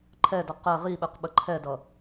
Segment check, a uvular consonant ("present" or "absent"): present